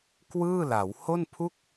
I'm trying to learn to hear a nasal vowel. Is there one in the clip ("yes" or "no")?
no